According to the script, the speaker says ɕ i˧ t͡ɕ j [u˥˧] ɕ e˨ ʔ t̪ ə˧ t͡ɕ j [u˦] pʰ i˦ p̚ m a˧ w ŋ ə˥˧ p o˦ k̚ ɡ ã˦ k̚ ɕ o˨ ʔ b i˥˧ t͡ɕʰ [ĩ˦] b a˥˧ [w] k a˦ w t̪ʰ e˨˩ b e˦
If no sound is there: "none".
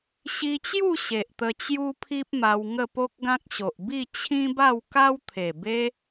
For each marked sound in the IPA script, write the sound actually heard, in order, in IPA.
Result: u˥˧, u˦, ĩ˦, w

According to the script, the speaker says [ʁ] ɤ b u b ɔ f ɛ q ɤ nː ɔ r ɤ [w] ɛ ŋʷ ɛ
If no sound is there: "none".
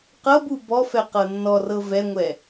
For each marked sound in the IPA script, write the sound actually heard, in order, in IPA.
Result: q, v

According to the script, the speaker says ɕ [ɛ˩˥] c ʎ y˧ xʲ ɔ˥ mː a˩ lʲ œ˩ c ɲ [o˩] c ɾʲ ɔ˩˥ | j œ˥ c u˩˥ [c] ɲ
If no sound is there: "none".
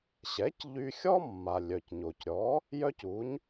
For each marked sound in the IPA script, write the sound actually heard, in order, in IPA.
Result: ɛ˩˥, o˩, none

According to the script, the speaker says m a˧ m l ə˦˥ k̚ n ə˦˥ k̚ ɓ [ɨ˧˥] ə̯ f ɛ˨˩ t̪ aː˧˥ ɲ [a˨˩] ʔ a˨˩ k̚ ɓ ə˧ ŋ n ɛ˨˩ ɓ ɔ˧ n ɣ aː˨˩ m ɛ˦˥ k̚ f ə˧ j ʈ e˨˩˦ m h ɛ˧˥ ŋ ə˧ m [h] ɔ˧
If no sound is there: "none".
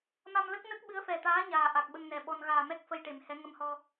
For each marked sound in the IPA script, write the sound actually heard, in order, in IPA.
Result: ɨ˧˥, aː˨˩, h

